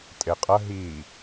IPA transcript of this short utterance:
tʼ e qʼ ɐ ɦ i

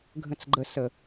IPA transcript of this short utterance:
ɡʱ ə̃ t͡s ɡ͡ǃ ə s ə

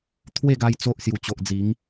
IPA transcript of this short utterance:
t̪ʰ w e˥˧ ɡ a˧ j t͡s o˦ ʔ s j u˨˩ t͡ɕ o˨ ʔ d͡z i˨˦ ŋ

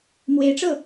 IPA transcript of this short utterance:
m w e˧˥ ɪ̯ ʈ͡ʂ ɤ˥˩

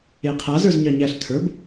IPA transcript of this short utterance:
e qʰ a z ə˞ z ɲ ɑ ɲ æ ɬ tʰ ə˞ b

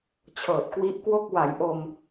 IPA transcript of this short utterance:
t͡ɕʰ ɤː˨˩ t̚ k w i˦˥ ʔ k w o˥˩ k̚ w a˩˦ j ʔ o˧ m

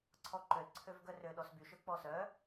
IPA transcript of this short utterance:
ǀʰ ɔ ǃ ø l ǀʰ ø v ɡ œ r ø ɗ ɔ s b y ʃ ɵ k͡p ɔ s œ

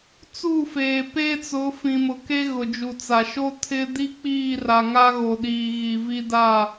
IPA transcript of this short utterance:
t͡s u˦˨ f eː˨ p eː˦ t͡s ʊ˨˦ f ĩ˨ m ʊ˨ k e˦ ɣ ʊ˨ d͡ʒ u˨ t͡s a˨ ʃ o˦ tʰ ɪ˦ d i˦ k͡p iː˦˨ r a˨ ŋ a˦ ɣ o˨ ɗ iː˨ ɣ i˨ v i˦ d a˦˨

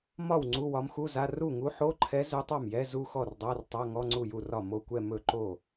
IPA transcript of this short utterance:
m ɒ˥˩ w ŋ͡ǀ u˧˥˧ w ɒ˧˥ m x u˧˥˧ z a˧˥˧ r u˥˩ ŋ u˧˥ ħ o˧˥˧ ǃʰ ɛ˧˥ z ɵ˧˥ tˤ a˥˩ m j ɛ˧˥˧ z u˥˧ x ɔ˥˩ r dˤ a˧˥˧ r tˤ a˧˥˧ ŋ ɔ˧˥˧ ŋ͡ǀ u˥˩ j u˥˩ r ɒ˥˩ m o˥˧ kʷ ɛ˥˧ m ɵ˥˩ ǃ o˥˩

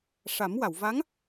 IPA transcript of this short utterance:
ʂ a˨˩˦ m w a˨˩˨ w v a˧˥ ŋ

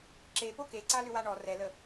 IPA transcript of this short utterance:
ǁ e p o k e ǀ a l ʏ w a ɳ ɔ r ɛ l ə

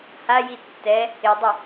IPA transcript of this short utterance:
h a j i tː ɛ | ɪ dˤ ɪ

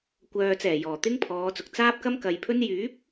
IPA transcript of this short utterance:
kʷ œː˨ t͡s ɛː˨˩ j ɔː˨˩ t̪ ɪ˥ ŋ pʰ ɔː˨˧ t͡s ʊ˨ k̚ t͡s aː˥ p̚ k ɐ˥ m k ɐ˨ j pʰ ɵ˥ n j yː˨˥ p̚

